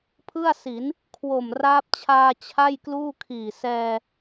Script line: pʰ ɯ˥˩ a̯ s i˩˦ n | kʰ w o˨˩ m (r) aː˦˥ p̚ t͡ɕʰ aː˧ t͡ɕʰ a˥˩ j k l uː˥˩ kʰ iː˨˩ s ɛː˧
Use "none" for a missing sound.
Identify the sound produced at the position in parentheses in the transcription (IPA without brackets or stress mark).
r